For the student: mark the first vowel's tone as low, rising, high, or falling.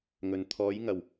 low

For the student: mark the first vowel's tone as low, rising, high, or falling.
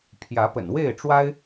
rising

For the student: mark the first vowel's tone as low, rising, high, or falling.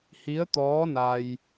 rising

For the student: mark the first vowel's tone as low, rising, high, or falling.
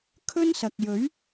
high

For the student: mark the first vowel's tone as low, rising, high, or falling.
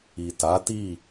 low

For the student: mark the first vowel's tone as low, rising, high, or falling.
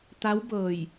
rising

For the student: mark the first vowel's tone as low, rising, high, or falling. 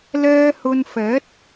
high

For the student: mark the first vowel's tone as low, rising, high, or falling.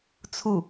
falling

